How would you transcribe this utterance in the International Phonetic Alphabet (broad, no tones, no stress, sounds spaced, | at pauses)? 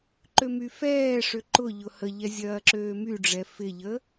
ǃ ø m y f ɛː ʂ ø ǃ ʊ ʎ ʊ h ə ʎ ɛ zʲ ɐː ǁ øː m y ɖ͡ʐ ɛ f ɪ ʎ ə